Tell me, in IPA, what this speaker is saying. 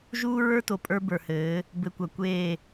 ʒuː˦ ɹə˞˦ to˨pʼə˞˦ bə˞˨hɘː˨˦ | bɘ˨kʷɐ˨kʷeː˦˨

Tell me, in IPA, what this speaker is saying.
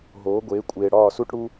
ɦoː˩˥ɡʷeː˩˥kʷʼeː˨ ɽɒː˥˩su˥ʈɽu˥

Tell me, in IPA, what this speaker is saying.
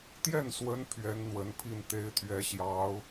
t̪jɛ˥˩nswə˧˥n pʰɥɛ˧˥nn̪wə˧˥npʰi˥˩n t̪e˧˥ɪ̯t̪ʰɥɛ˧˥ɕjɑ˧˥ʊ̯

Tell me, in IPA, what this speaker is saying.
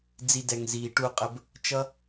d͡zi˧dɛ˨ŋ ziː˨ʈu˦˨ qʼə˦b | t͡ʃʌ˦

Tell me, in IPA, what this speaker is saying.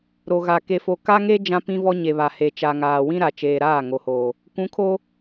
ɾo˨ɣa˨ ke˨fo˨ka˦ŋe˦ d͡ʒã˦pĩ˦vɔ˦ ɲe˨βa˨ he˨t͡ʃa˨ ŋaː˨wĩ˦ ɾa˨t͡ʃeː˨ɾaː˦˨ ŋo˨hoː˨ | kʷũ˨˦kʰo˦

